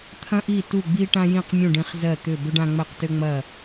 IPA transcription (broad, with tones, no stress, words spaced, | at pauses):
t̪ʰɐ̃˥ʔi˥˨ tu˥˨ɡ͡bi˥ ʈã˥jĩ˥˨qmʲũ˥˨ɖĩ˥˨χ zɜ˥˨ t̪ʏ˥˨ bʏ˥ɖ ã˥ ŋ͡mɜ˥˨qtʏ˥ ŋ͡mɐ˥˨